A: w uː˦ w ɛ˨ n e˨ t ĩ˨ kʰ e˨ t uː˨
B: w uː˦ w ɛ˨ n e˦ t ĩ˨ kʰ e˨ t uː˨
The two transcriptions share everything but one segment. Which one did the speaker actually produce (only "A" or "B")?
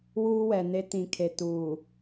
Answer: B